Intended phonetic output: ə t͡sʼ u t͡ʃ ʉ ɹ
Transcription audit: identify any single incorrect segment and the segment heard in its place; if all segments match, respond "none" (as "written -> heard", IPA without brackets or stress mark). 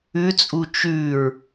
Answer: ə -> ʉ